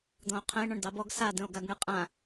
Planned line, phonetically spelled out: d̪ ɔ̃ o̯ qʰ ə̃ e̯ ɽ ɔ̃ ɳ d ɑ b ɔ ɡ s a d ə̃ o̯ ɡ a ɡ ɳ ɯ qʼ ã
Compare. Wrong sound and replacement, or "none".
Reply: ɽ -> ɳ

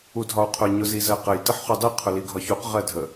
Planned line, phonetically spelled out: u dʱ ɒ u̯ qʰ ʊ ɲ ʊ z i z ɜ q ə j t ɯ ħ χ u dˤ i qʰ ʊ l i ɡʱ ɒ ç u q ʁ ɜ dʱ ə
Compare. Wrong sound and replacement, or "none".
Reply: ɯ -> ə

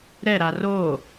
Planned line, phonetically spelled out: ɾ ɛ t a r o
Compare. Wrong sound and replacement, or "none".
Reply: t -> ɾ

